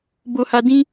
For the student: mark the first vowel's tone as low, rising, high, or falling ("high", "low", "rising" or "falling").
high